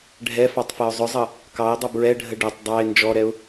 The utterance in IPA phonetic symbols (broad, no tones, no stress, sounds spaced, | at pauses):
ɖʱ ɛ f ɑ tˤ f ɜ ʊ̯ zˤ ʊ zˤ ʌ | k ɑ ɪ̯ dˤ ʌ b ɹ ɛ ɖʱ ə ɖ ɜ tˤ dˤ ɑ ɪ̯ n d͡ʒ ɔ ɾ ɛ ʊ̯